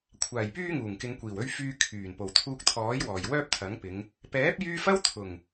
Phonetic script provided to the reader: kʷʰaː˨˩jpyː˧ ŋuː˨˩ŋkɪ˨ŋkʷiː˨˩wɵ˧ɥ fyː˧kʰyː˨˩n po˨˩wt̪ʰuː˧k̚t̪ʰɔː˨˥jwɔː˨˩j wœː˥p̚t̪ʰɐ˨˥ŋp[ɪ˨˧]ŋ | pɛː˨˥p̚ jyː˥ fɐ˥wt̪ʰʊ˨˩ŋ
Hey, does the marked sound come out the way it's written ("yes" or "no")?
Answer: yes